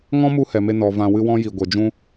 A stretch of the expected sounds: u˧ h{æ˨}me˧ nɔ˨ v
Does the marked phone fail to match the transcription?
yes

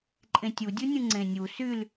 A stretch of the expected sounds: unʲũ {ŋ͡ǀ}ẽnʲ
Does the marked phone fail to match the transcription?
no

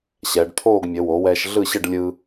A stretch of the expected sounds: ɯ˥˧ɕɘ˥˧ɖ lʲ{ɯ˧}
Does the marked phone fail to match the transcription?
no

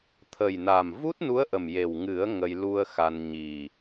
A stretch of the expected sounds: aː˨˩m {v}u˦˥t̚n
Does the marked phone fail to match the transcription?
no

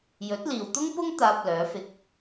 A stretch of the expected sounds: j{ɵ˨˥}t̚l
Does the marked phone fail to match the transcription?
no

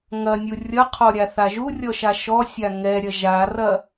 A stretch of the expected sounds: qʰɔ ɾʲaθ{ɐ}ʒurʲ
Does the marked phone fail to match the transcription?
yes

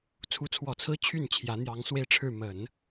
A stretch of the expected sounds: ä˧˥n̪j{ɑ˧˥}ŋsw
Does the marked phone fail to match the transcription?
no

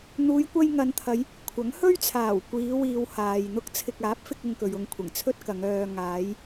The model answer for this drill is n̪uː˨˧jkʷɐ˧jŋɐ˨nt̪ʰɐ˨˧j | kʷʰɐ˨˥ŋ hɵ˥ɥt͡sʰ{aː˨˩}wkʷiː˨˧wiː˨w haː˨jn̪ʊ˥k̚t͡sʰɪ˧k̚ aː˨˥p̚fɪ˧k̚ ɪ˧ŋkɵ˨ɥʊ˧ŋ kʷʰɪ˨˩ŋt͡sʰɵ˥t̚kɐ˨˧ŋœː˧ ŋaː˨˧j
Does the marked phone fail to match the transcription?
no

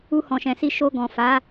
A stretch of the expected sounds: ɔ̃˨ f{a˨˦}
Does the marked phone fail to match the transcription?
no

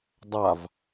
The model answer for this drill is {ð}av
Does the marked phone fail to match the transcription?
yes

